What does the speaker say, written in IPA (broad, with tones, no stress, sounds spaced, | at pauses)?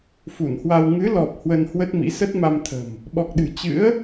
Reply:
f u˧˩ n h w a˧ w ŋ ɨ˨˦ l ɔ˨˩ p̚ h w ə˧ n h w ə˦˥ t̚ m ḭ˧˥ s ə˦˥ t̚ m a˧ m t̪ʰ ə̤˨˩ m | ɓ ɔ˨˩ k̚ ɗ ɨ̤˨˩ t͡ɕ ɨ̰˧˥ ə̯